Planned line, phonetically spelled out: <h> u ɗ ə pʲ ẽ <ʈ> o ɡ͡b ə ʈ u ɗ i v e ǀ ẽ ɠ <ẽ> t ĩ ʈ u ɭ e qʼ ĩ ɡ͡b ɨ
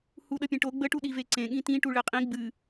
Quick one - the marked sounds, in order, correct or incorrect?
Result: correct, correct, incorrect: ĩ

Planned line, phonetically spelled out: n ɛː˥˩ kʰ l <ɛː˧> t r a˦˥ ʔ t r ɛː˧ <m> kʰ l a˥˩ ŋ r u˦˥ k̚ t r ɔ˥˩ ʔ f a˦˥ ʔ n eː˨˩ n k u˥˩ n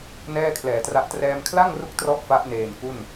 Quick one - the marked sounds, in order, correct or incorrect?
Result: incorrect: ɛː˨˩, correct

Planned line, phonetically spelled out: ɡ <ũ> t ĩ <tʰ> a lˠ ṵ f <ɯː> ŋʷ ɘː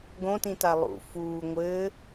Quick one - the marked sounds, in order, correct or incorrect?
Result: incorrect: õ, incorrect: t, incorrect: uː

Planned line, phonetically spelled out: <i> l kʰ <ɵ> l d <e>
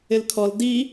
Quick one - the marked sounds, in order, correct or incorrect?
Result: incorrect: ɪ, incorrect: ɔ, incorrect: i

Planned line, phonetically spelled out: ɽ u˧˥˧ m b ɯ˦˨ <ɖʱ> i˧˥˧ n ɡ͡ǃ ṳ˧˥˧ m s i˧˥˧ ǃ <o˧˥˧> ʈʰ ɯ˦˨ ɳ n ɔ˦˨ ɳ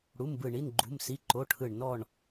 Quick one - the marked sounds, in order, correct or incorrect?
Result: incorrect: ɳ, correct

